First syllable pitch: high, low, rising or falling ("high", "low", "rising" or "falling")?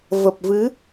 low